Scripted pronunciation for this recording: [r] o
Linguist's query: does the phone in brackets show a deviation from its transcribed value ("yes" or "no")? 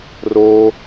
no